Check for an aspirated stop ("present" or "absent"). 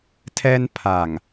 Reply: present